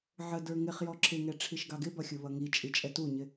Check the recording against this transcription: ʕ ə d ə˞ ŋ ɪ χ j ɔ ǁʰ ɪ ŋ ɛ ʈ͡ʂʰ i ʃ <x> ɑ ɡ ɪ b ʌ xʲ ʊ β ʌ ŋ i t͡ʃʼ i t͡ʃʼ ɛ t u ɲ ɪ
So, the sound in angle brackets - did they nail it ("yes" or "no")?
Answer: no